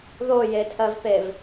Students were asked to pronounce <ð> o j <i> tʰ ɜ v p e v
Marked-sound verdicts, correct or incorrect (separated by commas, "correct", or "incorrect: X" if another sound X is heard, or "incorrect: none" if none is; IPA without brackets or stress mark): correct, incorrect: e